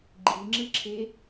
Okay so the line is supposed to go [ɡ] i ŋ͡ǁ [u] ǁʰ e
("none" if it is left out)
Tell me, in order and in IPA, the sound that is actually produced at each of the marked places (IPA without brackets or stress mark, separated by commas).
ɡ͡ǃ, ɯ